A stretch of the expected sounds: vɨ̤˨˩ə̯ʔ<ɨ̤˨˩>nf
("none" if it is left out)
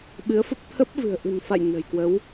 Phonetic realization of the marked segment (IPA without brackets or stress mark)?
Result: ɨ̤˨˩